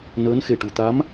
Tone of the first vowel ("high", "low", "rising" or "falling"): rising